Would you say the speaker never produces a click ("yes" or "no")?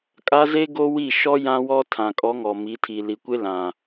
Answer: yes